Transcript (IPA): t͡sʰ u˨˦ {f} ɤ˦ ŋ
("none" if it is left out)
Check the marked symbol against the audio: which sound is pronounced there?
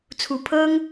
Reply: pʰ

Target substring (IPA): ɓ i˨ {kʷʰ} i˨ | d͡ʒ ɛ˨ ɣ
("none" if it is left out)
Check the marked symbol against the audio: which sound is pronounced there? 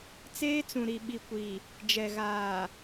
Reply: kʷ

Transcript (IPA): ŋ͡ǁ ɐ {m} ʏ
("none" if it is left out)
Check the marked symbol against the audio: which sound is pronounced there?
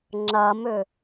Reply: m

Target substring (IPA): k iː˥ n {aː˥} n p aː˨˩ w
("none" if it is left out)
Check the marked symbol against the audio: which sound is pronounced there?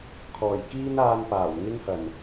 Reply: aː˧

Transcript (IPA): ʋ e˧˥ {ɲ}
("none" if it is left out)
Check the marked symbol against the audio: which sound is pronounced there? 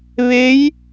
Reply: j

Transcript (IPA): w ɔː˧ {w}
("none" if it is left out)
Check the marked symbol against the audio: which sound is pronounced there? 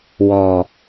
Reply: none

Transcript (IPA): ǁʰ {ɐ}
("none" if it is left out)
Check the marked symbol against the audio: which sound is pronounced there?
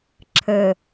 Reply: ə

